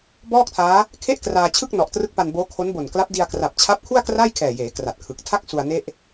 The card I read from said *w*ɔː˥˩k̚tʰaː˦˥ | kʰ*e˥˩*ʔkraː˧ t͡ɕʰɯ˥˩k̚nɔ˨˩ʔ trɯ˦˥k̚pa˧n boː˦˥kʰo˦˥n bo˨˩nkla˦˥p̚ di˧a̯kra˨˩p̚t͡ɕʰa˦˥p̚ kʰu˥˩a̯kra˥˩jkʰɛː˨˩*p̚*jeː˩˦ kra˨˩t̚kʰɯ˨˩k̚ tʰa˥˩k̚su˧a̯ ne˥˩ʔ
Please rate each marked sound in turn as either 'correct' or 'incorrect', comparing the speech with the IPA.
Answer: incorrect, correct, incorrect

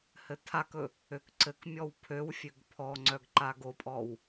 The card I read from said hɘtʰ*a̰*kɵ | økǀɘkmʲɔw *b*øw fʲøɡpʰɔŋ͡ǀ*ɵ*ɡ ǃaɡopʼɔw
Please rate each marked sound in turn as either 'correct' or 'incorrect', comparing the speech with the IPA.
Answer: incorrect, incorrect, incorrect

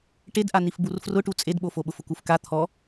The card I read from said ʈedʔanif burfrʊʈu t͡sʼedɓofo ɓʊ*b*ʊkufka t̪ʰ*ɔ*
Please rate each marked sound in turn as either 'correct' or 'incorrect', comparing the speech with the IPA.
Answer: incorrect, correct

